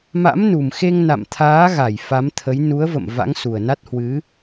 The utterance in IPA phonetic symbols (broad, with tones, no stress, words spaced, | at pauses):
ma̰˧˥mnu˨˩mxe˧ŋna̰˧˨m t̪ʰaː˨˦ɣa˧˩j fa˨˦mt̪ʰə˨˦j nu˨˦ə̯və̰˧˨m va̰˧˥ŋsu˨˩ə̯na˦˥t̚ hwɨ˨˦